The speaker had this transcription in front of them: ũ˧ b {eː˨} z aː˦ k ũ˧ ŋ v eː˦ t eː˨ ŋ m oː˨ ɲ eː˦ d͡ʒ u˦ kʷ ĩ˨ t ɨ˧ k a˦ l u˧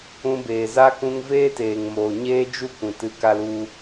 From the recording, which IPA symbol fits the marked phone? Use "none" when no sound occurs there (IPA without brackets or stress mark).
eː˨